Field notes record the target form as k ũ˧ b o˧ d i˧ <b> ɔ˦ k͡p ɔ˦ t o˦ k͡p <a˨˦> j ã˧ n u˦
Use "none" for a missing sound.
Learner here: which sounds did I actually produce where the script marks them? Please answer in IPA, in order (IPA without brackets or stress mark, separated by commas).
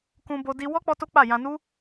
w, a˦˨